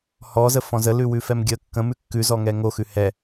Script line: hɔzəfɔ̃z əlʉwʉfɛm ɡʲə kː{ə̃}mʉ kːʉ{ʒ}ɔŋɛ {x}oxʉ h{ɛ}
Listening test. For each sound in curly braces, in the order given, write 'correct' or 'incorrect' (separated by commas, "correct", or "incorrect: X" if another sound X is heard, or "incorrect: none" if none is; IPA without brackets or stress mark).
correct, incorrect: z, incorrect: ŋ, correct